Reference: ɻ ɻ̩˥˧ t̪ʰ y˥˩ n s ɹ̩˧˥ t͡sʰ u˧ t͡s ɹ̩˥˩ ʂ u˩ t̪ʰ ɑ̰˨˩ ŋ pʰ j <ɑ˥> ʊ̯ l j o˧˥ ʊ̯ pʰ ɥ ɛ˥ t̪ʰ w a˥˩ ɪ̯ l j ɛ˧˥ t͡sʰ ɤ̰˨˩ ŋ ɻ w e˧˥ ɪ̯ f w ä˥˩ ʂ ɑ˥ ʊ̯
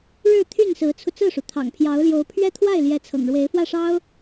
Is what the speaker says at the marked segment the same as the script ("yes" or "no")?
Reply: no